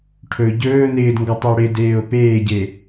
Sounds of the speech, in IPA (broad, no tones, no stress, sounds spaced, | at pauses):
ʈʰ ɵ ɟ ɵː n ɪː d ŋ ɡ ɔ tˤ ɵ o̯ ɽ ɪ d eː o̯ p eː ɟ e